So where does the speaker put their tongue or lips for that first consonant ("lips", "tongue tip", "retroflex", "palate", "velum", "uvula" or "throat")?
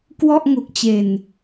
velum